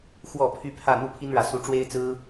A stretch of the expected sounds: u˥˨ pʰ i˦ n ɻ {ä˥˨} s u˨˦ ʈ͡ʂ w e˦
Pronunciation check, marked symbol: incorrect: ä˨˦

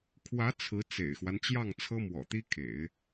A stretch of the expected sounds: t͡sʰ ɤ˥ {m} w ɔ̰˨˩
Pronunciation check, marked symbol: correct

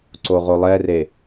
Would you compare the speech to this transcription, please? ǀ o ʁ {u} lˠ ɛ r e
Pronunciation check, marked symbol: incorrect: o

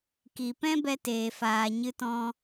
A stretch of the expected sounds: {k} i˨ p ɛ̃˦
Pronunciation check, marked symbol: correct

